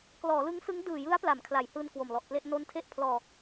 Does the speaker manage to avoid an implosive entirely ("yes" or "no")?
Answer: yes